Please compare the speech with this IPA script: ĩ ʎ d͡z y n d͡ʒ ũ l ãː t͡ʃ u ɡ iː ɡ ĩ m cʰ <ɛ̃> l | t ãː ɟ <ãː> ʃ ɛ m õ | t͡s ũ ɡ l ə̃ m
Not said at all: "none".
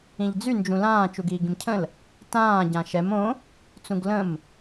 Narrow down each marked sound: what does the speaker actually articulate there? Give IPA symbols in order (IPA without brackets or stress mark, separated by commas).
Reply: ə̃, ã